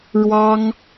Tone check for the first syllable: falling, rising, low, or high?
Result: high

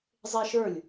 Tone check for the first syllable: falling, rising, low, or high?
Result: high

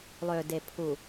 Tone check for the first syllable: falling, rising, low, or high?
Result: low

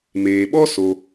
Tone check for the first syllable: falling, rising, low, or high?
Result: low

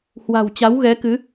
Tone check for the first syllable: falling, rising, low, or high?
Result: low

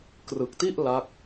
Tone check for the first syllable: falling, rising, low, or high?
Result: low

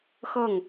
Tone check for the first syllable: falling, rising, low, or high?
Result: falling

